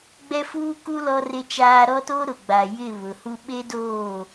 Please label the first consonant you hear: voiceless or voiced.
voiced